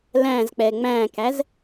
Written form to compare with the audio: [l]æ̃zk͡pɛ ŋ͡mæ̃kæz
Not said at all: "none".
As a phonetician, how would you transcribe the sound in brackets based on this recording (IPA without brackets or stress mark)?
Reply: l